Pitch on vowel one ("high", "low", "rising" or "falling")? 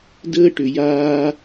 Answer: high